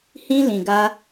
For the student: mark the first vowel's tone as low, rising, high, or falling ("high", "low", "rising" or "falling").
high